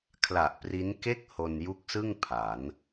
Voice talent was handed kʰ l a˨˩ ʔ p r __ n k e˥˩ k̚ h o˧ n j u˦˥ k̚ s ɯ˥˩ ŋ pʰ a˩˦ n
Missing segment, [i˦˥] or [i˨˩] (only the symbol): i˦˥